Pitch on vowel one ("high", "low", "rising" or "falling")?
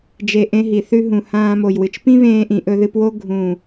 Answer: low